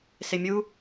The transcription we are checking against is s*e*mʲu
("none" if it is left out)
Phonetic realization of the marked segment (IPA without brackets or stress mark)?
e